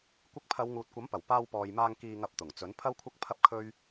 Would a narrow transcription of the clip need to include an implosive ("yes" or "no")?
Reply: no